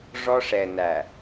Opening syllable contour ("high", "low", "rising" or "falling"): high